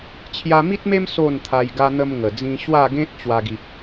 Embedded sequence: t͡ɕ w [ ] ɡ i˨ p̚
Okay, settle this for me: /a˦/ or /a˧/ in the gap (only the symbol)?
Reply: a˧